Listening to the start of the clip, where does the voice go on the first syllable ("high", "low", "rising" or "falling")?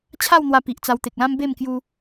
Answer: falling